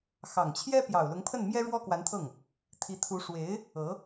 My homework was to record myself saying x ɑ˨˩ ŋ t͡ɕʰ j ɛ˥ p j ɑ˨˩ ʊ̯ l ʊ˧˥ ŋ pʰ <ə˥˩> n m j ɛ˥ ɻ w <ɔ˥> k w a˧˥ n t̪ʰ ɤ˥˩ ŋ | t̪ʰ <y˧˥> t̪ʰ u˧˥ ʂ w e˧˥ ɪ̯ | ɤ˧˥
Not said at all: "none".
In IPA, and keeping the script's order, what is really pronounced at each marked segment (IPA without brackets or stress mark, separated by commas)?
ə˥˩, ɔ˥, i˧˥